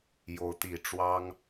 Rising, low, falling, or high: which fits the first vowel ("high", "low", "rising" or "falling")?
rising